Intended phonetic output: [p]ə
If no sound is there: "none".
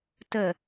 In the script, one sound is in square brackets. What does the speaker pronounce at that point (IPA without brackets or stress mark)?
t